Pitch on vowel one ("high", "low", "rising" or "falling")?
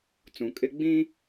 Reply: low